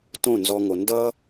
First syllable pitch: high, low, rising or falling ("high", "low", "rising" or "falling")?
falling